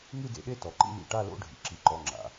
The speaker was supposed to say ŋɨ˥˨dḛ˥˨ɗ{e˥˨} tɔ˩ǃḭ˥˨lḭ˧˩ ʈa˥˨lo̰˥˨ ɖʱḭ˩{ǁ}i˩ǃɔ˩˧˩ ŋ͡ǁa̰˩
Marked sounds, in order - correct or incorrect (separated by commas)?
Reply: correct, correct